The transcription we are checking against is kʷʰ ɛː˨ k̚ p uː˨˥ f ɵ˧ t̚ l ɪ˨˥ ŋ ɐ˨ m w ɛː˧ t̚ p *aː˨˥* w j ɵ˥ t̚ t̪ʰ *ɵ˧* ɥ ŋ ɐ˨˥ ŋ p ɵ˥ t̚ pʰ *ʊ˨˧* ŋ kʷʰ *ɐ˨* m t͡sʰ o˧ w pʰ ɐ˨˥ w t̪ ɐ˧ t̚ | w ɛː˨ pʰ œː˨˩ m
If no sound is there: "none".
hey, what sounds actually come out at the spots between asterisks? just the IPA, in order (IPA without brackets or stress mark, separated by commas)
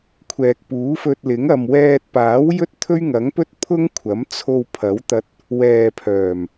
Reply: aː˨˥, ɵ˥, ʊ˥, ɐ˨˥